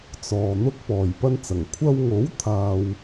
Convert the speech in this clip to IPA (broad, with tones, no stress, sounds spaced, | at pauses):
t͡s ɔː˨ n̪ ʊ˥ k̚ p ɔː˨ j p ɐ˥ n t͡s ɐ˨˩ ŋ kʷʰ ɐ˧ w ŋ o˨˥ w t̪ʰ aː˨ w